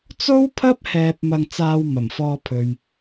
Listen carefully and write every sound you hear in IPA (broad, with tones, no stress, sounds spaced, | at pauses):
t͡s o˥ w pʰ ɐ˥ p̚ h ɛː˧ p̚ m ɐ˧ ŋ t͡s aː˧ w m ɐ˨˩ m f ɔː˧ pʰ ɵ˨ ɥ